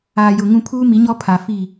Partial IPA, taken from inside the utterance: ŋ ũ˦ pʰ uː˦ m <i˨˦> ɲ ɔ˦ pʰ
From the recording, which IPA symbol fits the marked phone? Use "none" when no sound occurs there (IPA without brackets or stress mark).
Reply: i˨˦